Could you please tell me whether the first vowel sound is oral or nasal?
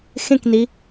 nasal